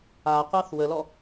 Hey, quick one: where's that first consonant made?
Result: uvula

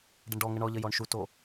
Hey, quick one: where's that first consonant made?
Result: retroflex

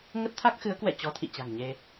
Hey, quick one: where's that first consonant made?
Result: velum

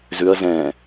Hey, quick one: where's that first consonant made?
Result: tongue tip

